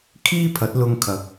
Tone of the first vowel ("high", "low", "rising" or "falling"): high